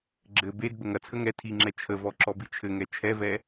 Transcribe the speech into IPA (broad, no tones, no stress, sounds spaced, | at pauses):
ɡ͡ǁ ɘ b e d b ə ŋ ɐ t͡sʰ ə ŋ ɛ tʰ i ŋ͡ǁ ɛ t͡ʃʰ ə v ɔ ǁ ɔ b i t͡ʃʰ ɘ ŋ ɛ t͡ʃʰ ɛ v ɛ